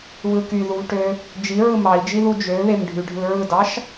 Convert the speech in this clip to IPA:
β ɯ k y ð u v ʈ ø | d͡ʒ i ɹ ɯ m ɑ i̯ d͡ʒ i ð u d͡ʒ ø β e m ɖʱ y ɖʱ ɯ ɹ ɯ d ɑ ʃ

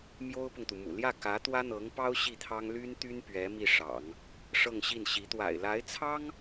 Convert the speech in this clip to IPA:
m j o˥ ʊ̯ p ʊ˨ ŋ t̪ u˩ m ṵ˨˩ l j ä˥˩ k ä˧˥ t̪ w ä˥ n̪ ɤ˧˥ ŋ p ɑ˥ ʊ̯ ɕ i˥˩ t̪ʰ ɑ˥ ŋ l y˥ n t̪ y˥ n p ɥ ɛ˧˥ m i˥˩ ʂ ɑ̰˨˩˦ ŋ | ʂ ɤ˥˧ ŋ ɕ i˥˩ n ɕ i˧˥ t̪ w a̰˨˩ ɪ̯ l a˧˥ ɪ̯ t͡sʰ ɑ˥ ŋ

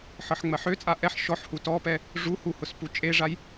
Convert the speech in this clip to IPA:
ħ ɤ ħ ŋ͡m ɜ ħ ø t͡sʼ a ʔ ɛ ħ ʃ ɔ ħ h u t ɔ p ɛ | ʐ u h u h ʊ s p u t͡ʃʼ e ʐ a j

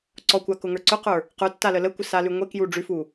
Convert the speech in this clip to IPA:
ǀ ɔ kʷ a k ʊ ŋ ə˞ ǀ ʊ q ə˞ | q ə˞ tː a l ə l ə kʷ ə s a l ʉ ŋʷ e k j u ɖ͡ʐ ʉ f u

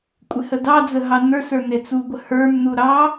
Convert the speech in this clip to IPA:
kʷʼ ɪ h ə d ɑ d͡z ə ɦ ɑ n ə˞ s ə˞ n e t͡s u ɡʷ ə h ə˞ m n u ɾ ɑ

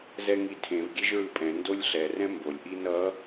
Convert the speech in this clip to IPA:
z ɛ ŋ i tʰ ẽ v ɡʲ e ʒ ɹ ɯ pʼ ɛ̃ n d o lʲ ɬ ɛ r ɛ̃ m b o lʲ ʔ i n ʌ

